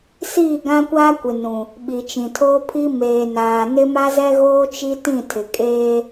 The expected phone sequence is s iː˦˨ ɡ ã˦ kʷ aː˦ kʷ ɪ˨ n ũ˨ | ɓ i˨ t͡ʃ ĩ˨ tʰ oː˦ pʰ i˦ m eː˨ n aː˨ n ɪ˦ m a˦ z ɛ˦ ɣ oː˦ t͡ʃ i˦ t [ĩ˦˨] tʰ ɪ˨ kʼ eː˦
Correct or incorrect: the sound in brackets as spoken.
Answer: correct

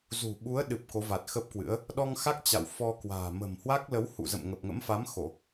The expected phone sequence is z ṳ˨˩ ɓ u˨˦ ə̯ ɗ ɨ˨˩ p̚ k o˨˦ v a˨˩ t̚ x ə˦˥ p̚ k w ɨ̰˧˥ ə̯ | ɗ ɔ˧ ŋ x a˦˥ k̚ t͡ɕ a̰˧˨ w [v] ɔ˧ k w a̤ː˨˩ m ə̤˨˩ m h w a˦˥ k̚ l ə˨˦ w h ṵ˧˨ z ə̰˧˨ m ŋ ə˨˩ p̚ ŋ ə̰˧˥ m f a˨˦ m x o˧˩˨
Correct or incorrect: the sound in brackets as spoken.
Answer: incorrect: f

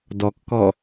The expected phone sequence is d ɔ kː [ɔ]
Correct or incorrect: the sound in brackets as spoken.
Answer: correct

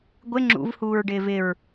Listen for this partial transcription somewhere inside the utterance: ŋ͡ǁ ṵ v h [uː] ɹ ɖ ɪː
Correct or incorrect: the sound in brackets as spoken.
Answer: correct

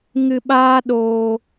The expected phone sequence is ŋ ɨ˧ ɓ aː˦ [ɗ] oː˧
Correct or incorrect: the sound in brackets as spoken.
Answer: correct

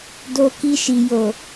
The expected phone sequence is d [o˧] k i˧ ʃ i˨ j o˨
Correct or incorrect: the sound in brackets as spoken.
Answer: correct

